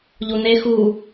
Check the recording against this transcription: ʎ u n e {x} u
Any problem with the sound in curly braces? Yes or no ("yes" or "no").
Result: no